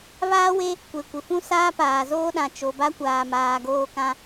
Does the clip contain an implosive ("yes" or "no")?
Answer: yes